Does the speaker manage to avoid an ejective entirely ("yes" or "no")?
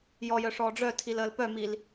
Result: yes